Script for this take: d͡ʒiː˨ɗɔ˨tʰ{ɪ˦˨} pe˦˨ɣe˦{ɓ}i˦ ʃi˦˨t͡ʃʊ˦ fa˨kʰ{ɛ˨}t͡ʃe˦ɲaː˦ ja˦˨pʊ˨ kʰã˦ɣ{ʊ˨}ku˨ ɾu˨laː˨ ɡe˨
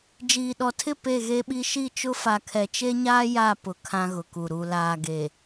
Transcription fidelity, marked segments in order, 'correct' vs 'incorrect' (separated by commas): correct, correct, correct, correct